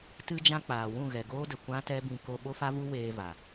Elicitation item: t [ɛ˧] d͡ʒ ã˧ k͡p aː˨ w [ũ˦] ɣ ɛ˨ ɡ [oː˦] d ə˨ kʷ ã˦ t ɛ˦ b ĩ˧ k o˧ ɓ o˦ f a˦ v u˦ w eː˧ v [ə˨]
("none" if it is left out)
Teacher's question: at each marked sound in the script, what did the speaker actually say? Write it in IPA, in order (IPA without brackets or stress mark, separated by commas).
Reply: ɨ˧, ũ˦˨, oː˦, a˨